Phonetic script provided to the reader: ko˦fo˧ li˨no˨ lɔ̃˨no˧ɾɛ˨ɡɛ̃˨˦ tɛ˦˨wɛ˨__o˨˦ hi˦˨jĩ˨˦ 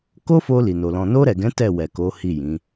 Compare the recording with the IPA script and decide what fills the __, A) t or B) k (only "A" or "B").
B